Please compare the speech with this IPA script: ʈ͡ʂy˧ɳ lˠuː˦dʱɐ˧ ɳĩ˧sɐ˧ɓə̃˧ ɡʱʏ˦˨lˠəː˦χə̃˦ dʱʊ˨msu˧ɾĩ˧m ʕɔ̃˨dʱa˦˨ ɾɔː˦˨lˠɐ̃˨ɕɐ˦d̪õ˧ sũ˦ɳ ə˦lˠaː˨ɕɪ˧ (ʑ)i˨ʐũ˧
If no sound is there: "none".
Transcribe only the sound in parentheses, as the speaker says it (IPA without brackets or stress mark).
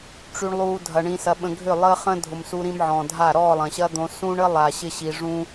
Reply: ɕ